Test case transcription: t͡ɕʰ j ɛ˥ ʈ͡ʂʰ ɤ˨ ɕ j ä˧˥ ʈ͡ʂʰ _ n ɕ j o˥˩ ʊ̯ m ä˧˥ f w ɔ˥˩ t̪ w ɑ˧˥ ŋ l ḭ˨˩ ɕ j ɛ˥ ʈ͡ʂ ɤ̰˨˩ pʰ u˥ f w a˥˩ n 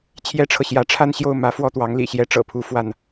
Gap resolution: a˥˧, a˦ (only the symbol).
a˥˧